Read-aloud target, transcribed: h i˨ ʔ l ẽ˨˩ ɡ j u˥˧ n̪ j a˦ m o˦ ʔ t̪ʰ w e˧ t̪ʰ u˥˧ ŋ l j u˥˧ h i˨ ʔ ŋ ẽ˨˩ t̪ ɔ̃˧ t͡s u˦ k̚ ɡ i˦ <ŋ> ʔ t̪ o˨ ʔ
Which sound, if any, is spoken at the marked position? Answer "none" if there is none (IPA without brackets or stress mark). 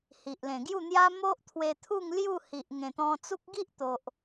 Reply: none